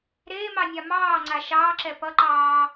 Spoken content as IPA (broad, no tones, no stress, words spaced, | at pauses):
ɾeːmɑnʲa mɑːŋ͡ǀa ʃɑːǁɛ pʌǃɑː